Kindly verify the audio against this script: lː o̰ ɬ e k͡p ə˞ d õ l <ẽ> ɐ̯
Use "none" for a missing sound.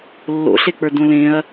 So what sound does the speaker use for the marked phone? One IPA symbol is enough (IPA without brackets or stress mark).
ẽ